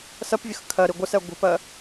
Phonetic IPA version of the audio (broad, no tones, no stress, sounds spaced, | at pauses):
s ɜ p vʲ ə x kʰ ɜ ɾ i ɡʷ ɪ s ɛ ɡʷ ə̤ p ɜ